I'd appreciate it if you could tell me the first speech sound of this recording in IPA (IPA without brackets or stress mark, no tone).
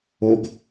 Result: o